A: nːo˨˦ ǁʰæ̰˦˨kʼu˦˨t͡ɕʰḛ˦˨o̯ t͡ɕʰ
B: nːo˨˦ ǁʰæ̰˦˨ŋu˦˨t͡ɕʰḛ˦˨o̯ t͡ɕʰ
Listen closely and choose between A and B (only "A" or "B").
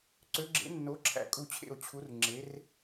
A